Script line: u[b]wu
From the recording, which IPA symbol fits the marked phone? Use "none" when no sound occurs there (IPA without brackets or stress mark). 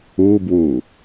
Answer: b